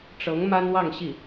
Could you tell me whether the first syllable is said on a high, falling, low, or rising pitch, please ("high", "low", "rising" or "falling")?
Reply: rising